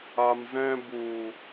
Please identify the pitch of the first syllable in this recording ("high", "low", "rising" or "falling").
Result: low